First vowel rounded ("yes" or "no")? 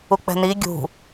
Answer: yes